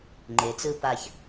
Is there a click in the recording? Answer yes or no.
yes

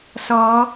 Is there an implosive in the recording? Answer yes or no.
no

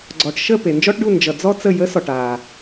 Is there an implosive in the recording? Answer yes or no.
no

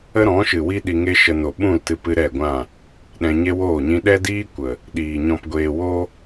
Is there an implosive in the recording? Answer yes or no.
yes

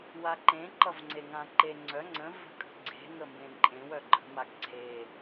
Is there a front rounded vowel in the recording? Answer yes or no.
yes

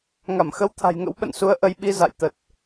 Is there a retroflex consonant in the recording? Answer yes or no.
no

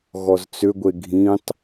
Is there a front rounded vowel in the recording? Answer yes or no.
yes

